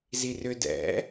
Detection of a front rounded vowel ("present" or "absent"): present